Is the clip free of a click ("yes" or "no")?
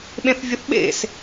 yes